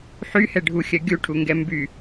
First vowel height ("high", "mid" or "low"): high